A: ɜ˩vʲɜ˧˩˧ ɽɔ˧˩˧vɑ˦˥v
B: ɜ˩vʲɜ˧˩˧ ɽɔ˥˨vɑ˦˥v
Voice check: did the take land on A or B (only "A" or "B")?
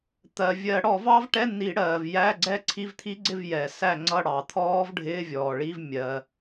A